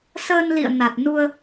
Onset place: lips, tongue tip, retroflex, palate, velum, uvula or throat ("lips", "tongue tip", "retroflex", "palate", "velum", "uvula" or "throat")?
tongue tip